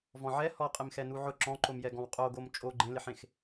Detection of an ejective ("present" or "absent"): present